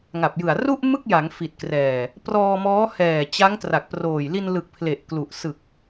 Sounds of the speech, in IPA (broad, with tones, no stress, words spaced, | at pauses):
ŋa˨˩p̚jɯ˨˩a̯ ru˥˩ʔ mɯ˥˩k̚ja˩˦ŋ fi˨˩t̚ krɛː˨˩ | prɔː˧mɔː˦˥ hɛː˨˩t͡ɕa˦˥ŋ tra˨˩k̚proː˨˩j li˧nlɯ˨˩k̚ pʰle˨˩ʔklu˨˩ʔ sɯ˨˩k̚